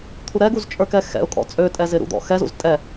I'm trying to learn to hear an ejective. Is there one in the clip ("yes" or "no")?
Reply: yes